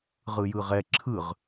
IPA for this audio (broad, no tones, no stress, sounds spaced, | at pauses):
ʁ ɯ j ɯ ʁ ɛ ǁʰ ɯ ʁ